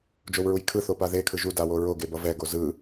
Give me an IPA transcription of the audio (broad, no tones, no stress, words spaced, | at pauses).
d͡ʒowɹujkʰɯ θopaðe kʰɯʒu dawoɹo ɡebʌvɛ ɡozɯ